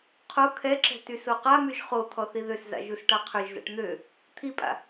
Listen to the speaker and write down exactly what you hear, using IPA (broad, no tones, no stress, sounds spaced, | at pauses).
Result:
qʰ o kʰ ɛ ǁ ɛ̤ t y s o q a m y ʒ χ o t̪ʰ ɔ θ i ð ø s z a̰ ʒ u s ʈ a qʰ ø ʒ z a̰ ʈ n̪ ø | t̪ʰ i pʼ a̰